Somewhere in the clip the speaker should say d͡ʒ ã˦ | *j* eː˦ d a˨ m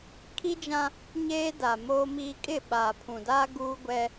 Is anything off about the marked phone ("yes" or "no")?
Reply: yes